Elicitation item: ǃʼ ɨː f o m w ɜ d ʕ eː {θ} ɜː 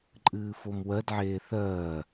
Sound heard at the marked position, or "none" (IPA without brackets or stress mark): θ